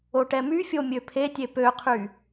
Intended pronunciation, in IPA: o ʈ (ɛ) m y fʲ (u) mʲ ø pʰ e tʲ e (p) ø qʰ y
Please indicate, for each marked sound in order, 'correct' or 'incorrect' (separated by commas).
correct, incorrect, correct